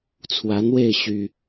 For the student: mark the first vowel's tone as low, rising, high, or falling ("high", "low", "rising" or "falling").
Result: rising